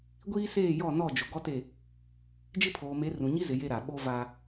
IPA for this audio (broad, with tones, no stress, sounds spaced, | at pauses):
ɡʷ iː˦ s eː˦˨ j ɔ˦˨ n ɔ˦˨ d͡ʒ ʊ˨ ɡ ɔ˦ t e˦˨ | d͡ʒ ɪ˦ pʰ oː˨ m e˨˦ r ũ˨ ɲ i˦ z ɪ˨ j e˦ ɾ a˨ ɓ o˦ v a˦